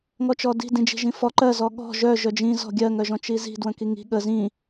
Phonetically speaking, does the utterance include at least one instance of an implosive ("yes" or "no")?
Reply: yes